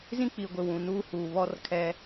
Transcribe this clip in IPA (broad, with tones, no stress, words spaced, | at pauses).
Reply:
zĩ˦k͡pi˨ɡʷɪ˨ wũ˨nuː˦ huː˨ βɔ˦rkʰɛ˦